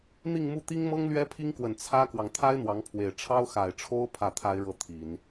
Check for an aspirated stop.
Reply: present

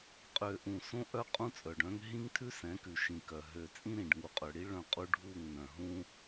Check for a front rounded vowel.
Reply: present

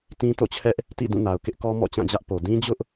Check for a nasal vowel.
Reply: present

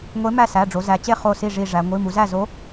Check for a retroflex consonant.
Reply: present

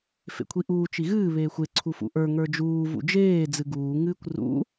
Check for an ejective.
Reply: absent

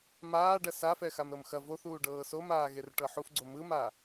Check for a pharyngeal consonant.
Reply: present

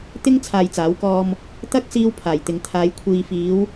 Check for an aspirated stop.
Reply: present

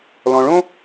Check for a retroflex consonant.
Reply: present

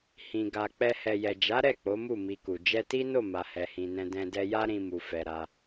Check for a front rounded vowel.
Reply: absent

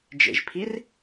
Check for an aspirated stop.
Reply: present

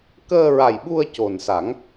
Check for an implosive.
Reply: present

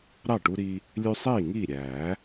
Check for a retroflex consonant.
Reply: present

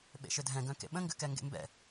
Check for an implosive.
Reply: present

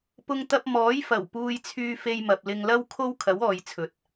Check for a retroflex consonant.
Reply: absent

